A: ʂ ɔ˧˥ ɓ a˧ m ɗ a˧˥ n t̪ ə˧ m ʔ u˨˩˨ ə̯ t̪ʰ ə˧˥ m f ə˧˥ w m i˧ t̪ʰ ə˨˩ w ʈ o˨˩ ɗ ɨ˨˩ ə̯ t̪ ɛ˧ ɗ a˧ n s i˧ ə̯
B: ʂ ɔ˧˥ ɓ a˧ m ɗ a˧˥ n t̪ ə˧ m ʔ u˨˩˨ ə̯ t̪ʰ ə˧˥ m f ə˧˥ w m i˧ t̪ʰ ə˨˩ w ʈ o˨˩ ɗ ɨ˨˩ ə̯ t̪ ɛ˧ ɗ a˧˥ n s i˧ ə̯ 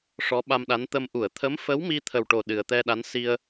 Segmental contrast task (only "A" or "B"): B